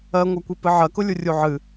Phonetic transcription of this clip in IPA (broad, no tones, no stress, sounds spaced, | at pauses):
ɜ ŋʷ ɜ kʷ i p ɨ ʕ ɜ k ʊ lʲ u rʲ u ʕ ɨ